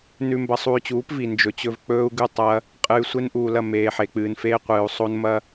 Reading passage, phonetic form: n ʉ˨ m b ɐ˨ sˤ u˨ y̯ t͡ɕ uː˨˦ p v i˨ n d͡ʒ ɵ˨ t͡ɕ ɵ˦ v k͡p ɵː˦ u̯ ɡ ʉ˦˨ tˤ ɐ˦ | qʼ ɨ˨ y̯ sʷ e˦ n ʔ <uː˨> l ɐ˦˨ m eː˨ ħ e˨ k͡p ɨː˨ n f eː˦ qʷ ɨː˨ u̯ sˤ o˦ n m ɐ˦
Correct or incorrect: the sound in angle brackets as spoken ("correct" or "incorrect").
correct